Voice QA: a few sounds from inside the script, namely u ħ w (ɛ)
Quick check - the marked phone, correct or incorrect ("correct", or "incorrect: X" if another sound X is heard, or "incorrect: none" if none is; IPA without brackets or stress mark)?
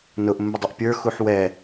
correct